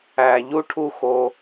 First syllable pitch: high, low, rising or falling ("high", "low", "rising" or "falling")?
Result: low